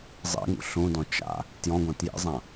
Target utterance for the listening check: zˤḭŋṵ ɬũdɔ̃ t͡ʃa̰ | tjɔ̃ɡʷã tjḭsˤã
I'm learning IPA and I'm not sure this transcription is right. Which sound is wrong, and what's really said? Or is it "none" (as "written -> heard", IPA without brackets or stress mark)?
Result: sˤ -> zˤ